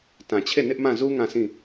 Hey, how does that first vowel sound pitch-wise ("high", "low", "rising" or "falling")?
low